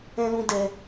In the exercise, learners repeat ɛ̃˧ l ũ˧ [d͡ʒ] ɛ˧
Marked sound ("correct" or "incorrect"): incorrect